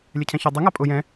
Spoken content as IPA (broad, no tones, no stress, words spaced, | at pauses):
lʲɛcʰɛ̃çɔ dˤɪ ŋapʼʊ jɛ̃